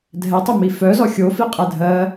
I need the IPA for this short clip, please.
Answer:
dʱ ɛ tˤ ɘ m i f œ z ɔ xʲ o f i qʼ ɛ dʱ ɜ

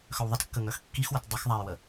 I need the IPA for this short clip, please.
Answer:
x œ w ðˤ ə t kː ə ŋ œ x kː i x w ə t dˤ ə x ðˤ a j w ə

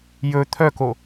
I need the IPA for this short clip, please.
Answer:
j ɵ t̪ʰ œ k o

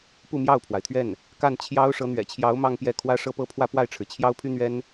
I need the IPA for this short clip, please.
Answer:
p u˥˧ m j ɑ˥˩ ʊ̯ pʰ w a˩ ɪ̯ t̪ʰ ɥ ɛ˥˩ n | k a˥˩ n t͡ɕʰ j ɑ˥ ʊ̯ ʂ ɤ˧˥ n̪ ɥ ɛ̰˨˩ t͡ɕʰ j ɑ˧˥ ʊ̯ m ɑ˥˧ ŋ p j ɛ˥˩ kʰ w ä˥ ʂ ɤ˥˧ p ɤ˥˧ pʰ w ä˥˧ p w a˥˩ ɪ̯ ʈ͡ʂʰ ɻ̩˩ t͡ɕʰ j ɑ˥ ʊ̯ pʰ y˥ n̪ ɥ ɛ˥ n

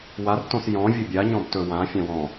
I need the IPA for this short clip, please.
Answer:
w a r t õ s j ɔ̃ vʲ ɵ bʲ a ɲ ɔ̃ b t ɵ w ã fʲ ã w ɔ̃

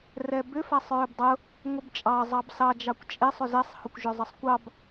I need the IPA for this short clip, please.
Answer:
r ɛ b ʏ f a sˤ ɹ ʏ b dˤ ʊ | ŋʷ ə b t͡ʃʼ ɑ zˤ ɑ b s ɑ d͡ʒ ɑ kʷ t͡ʃʼ e sˤ ʏ z ɛ sˤ h ʊ kʷ ʒ ʏ zˤ ə sˤ kʷ ɑ b

